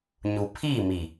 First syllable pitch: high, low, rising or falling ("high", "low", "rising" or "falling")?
low